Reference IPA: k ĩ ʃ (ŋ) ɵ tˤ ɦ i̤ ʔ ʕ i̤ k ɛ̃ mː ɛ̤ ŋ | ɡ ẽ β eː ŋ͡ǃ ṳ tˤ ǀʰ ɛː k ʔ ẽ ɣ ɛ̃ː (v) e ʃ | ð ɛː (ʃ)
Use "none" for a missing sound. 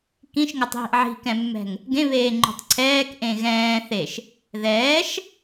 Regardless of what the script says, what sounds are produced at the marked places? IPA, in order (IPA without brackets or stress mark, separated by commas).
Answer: ŋ, θ, ʃ